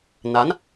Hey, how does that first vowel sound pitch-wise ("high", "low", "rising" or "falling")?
rising